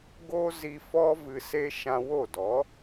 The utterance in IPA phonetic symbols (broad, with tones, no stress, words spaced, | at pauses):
ɡo˦zi˧fɔ˦ vɨ˧se˦ ʃã˧ wo˦˨dɔ˨˦